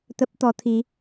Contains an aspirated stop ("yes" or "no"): yes